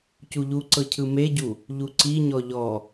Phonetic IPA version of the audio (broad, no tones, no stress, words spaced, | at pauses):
cuʎuǀɤ cʰɯmeɟu | ʎuǀiɲɔ ʎɔ